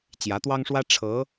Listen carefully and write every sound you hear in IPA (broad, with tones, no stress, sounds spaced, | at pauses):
t͡ɕ j ä˧˥ t̪ w ɑ˥ ŋ ʂ w ä˥ ʈ͡ʂʰ ɤ˧˥